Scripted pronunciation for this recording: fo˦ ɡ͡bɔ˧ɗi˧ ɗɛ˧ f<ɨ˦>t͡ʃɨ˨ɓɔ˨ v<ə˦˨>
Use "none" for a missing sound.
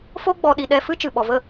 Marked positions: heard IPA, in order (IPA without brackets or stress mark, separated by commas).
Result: ɨ˦, ə˦˨